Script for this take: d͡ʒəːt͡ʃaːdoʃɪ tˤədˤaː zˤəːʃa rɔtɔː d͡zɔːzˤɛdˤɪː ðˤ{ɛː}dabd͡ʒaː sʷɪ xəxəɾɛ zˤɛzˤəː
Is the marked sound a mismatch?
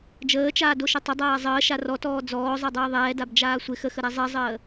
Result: no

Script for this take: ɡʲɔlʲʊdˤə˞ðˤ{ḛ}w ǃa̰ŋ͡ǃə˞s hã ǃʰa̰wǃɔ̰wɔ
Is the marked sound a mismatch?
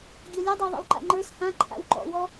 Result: no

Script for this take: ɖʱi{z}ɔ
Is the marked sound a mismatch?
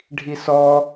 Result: yes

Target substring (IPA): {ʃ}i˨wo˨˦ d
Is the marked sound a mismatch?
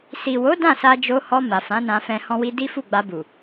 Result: yes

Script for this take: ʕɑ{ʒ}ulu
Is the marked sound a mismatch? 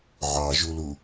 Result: no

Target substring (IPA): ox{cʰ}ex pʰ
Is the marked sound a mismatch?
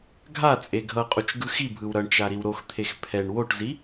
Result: yes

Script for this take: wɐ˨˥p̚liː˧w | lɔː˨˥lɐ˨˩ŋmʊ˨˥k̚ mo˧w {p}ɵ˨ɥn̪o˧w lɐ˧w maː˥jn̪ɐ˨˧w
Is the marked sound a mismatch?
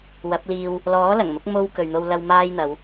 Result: yes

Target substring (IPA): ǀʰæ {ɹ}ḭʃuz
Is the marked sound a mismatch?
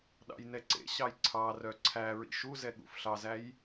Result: no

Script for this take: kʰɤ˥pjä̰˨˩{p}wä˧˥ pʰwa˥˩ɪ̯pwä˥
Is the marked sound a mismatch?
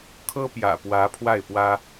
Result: no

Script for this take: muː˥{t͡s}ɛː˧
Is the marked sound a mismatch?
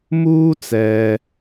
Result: no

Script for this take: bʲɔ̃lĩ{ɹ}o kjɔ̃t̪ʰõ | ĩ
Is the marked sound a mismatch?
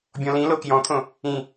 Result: yes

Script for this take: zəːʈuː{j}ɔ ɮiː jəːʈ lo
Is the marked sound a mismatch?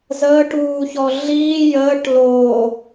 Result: yes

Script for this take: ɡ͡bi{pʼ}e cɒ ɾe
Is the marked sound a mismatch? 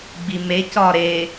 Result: yes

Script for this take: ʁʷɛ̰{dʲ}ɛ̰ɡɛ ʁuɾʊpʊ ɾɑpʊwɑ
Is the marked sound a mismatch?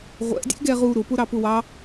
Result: no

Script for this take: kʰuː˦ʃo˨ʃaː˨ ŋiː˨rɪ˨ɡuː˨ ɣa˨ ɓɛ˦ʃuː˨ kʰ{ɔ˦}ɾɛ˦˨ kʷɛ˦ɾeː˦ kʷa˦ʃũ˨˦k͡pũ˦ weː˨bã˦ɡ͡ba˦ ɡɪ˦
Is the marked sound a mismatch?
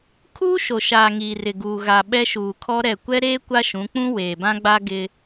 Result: no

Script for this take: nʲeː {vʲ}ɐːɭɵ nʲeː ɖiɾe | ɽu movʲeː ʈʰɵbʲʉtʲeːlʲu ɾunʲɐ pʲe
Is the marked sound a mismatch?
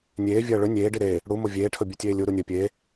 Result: no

